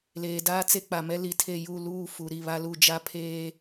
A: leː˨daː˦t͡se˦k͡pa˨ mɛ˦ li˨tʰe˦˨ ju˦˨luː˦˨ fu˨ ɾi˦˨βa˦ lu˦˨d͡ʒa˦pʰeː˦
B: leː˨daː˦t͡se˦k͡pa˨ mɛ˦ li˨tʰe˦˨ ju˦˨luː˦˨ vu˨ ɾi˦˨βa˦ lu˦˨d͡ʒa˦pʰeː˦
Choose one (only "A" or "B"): A